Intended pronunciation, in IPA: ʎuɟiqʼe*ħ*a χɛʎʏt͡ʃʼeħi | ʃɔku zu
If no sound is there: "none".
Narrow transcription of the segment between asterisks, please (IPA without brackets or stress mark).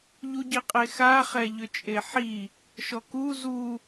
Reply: x